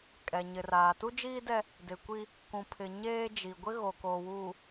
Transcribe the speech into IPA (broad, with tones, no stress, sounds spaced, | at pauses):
kʼ ɛ˨ ɲ ɪ˨ r aː˨ t u˦ d͡ʒ iː˦ d ɛ˦ | d ɪ˨ kʷ i˦ | k ũ˨ pʰ ɪ˨ ɲ eː˦ d͡ʒ i˨ ɡʷ ɪ˦ ɣ o˨ k oː˨ w uː˨